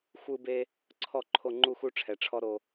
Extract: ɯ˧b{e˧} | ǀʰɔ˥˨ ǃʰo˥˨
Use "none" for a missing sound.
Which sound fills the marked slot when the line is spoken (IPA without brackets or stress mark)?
e˧